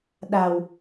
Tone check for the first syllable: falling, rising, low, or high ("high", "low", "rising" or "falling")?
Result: low